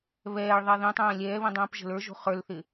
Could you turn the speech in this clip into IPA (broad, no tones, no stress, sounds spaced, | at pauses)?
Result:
β ɛː ɭ ðˤ ɛ ð ĩ tˤ ɛ̃ː lʲ ɛː β ĩ dˤ ĩː p ʒ ə̤ l ə˞ ʒ o̤ χ ə˞ l θ ɪ